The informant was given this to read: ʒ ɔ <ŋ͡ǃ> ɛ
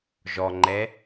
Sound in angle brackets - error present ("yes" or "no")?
no